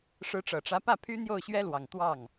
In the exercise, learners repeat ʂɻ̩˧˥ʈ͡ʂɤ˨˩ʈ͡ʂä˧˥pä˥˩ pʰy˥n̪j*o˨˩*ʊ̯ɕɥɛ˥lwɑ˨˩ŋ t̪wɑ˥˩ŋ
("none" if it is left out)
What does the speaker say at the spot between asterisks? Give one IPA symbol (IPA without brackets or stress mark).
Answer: o˥˩